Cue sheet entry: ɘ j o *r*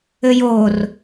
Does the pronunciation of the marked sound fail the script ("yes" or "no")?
no